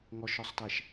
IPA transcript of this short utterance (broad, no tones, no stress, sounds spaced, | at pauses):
ŋ ɔ ʃ ɔ sˤ t ɛ ʃ